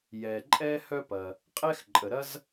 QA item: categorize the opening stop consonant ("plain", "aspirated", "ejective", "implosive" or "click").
click